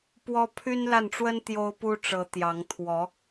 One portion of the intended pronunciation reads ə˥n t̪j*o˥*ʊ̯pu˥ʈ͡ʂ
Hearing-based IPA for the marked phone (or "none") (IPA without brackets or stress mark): o˥